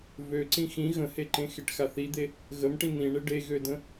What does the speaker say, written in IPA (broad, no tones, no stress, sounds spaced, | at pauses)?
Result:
v ø ǀ ĩ x ĩ ɣ ə̃ h e ǃ ẽ x e ʈ x a θ i d̪ e | ɣ ə m ʈ ĩ n̪ ĩ ɳ e ɖ e ɣ ø d ə̃